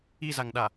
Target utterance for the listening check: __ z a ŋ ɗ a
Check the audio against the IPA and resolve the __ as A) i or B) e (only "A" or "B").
A